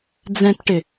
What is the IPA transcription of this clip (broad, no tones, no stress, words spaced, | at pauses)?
d͡zɛ̃tʈɪ